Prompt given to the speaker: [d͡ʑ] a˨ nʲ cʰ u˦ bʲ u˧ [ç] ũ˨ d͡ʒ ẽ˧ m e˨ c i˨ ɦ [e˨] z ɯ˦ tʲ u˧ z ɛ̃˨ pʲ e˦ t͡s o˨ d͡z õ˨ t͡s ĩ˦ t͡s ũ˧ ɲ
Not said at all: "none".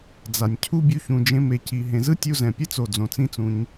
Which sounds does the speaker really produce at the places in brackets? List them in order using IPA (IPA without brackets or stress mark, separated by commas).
d͡z, ç, ẽ˨